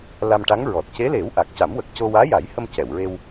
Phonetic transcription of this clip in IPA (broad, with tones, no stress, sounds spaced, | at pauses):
l a˧ m ʈ a˧˥ ŋ ɹ ɔ˨˩ t̚ c e˧˥ l e˨˩˦ w ʔ a˨˩ k̚ c a˨˩˦ m w ə˨˩ k̚ c o˧ w aː˧˥ j a˨˩˦ j h ə˧ m c ɛ˨˩˨ w ɹ e˧ w